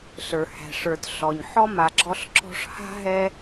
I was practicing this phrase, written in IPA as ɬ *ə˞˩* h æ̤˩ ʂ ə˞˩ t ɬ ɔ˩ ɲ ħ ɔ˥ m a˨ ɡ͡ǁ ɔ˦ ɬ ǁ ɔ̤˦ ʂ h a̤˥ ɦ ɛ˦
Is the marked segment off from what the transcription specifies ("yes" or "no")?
no